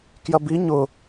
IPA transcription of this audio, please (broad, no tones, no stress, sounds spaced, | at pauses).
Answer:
k j ɐ b i ɲ ʊ